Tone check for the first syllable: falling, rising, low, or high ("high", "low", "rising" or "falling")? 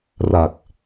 low